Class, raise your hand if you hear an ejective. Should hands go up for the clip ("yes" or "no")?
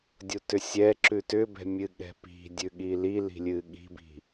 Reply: no